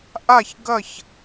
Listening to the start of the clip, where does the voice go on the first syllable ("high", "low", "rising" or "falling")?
falling